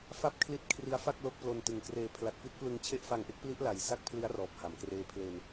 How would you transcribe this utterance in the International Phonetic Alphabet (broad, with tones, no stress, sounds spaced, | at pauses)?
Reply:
f a˥˩ p̚ kʰ l i˦˥ t̚ kʰ r i˦˥ a̯ f a˥˩ k̚ l o˦˥ k̚ p l o˧ n t ɯ˨˩ ŋ k r eː˧ pʰ l a˨˩ t̚ f i˦˥ t̚ p l ɯ˧ ŋ t͡ɕʰ e˦˥ ʔ f a˧ ŋ ʔ e˦˥ k̚ p l i˦˥ ʔ l a˨˩ j s a˥˩ k̚ pʰ l i˦˥ a̯ r ɔː˨˩ p̚ h a˩˦ m k r eː˦˥ pʰ l e˧ n